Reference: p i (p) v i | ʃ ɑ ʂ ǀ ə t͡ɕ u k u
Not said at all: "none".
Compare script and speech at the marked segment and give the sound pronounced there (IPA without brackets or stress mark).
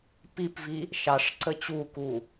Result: p